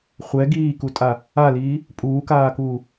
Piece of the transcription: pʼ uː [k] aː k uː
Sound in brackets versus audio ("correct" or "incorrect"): correct